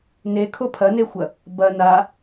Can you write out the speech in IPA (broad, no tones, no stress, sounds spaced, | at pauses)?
n e kʰ o pʰ ɐ n e xʷ ɐ | b ɐ n a